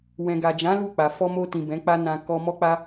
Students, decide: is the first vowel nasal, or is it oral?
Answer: nasal